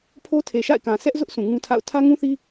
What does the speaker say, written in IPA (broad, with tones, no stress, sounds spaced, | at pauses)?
pʰ o˦ tʰ e˨ ʃ a̰˦˨ ɪ̯ k ã˨ s ɛ˦ ʔ z ʊ˦ ʔ s ũ˨ ŋ ũ˦ tʰ a̰˦˨ ʊ̯ tʰ ä˦ ŋ ũ˦ θ i˦